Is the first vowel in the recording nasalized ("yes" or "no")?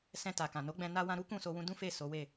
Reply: yes